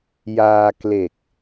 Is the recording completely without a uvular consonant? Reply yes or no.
yes